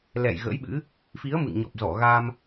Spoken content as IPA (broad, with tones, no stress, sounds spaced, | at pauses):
l ɛ̰˧˨ j ɣ ə̰˧˥ j ɓ ɨ̰˧˥ | f i˨˦ ə̯ m ɨ̰˧˨ ŋ ɲ ɔ˨˩ p̚ z ɔ˧˩ ɣ a˧ m